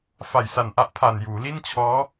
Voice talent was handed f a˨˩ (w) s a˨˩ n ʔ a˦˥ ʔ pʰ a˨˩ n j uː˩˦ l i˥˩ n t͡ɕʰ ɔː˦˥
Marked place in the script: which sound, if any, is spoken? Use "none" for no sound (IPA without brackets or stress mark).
j